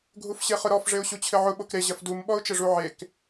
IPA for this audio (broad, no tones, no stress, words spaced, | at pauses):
ɡʱufɕeχʊɾɔf ʐeʊ̯ɕut͡ɕʰɘʕʊ ɓokɾe ʑɐfdum ɓɔʊ̯t͡ʃɘʐuʕek